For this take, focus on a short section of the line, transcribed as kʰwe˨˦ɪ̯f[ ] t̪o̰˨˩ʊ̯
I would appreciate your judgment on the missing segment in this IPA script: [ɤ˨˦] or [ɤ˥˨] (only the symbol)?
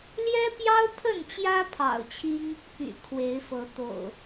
ɤ˨˦